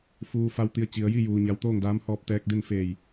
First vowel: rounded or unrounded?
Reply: rounded